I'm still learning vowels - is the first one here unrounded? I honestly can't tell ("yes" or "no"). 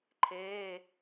yes